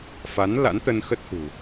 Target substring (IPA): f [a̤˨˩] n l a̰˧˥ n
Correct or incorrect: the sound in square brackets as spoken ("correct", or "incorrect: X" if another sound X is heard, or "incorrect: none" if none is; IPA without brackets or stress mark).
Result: incorrect: a˨˦